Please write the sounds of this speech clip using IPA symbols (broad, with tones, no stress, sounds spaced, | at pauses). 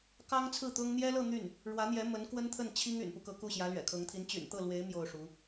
k ɑ˥ ŋ t͡sʰ ɹ̩˥˩ t̪ ʊ˥ ŋ n̪ j ɛ˥ l ɤ˥˧ n̪ y˥˩ n | ɻ w ä˧˥ n̪ j ɛ˧˥ m ə˧˥ n k w ə˥ n t̪ʰ ə˥˩ n t͡ɕʰ i˥ ŋ y̰˨˩ n p u˦ k ɤ˧˥ k u˥˩ ɕ j ä˧˥ l ɥ ɛ̰˨˩ kʰ ɤ˧˥ ŋ t̪ʰ i˧˥ n t͡ɕ y̰˨˩ n t̪ ɤ˥˩ l w e˧˥ ɪ̯ m j o˥˩ ʊ̯ ʂ u˧˥